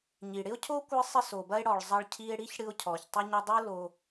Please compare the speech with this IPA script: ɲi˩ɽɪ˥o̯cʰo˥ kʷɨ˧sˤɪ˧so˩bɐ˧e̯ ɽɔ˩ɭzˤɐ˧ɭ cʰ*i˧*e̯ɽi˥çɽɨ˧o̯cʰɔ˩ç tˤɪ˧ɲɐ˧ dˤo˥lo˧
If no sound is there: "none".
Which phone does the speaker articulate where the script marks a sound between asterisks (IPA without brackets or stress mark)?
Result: i˧